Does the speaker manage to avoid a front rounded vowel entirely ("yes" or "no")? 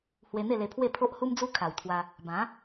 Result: yes